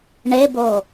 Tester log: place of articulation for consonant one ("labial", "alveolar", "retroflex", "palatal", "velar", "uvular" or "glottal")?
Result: retroflex